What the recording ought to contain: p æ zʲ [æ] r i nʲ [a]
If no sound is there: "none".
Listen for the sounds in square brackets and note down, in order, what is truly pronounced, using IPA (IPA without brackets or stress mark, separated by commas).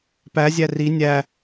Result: æ, æ